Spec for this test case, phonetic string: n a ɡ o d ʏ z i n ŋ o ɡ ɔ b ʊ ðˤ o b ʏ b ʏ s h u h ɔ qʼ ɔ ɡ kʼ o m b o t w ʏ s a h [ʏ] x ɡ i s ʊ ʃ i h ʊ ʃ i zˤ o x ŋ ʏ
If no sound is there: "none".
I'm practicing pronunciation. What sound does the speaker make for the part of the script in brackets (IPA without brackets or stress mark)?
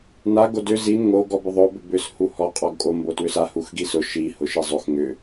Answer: u